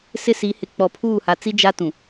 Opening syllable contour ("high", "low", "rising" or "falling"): high